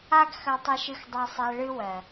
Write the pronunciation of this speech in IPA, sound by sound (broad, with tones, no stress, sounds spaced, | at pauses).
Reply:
a˧ ɡ x ɐ˨ tˤ ɨ˨ ʃ ɨ˨ x dˤ ɜ˨ sˤ ɛ˨ ɭ ɨ˦ w ɜ˨